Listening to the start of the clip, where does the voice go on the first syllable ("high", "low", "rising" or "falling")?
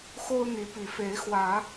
high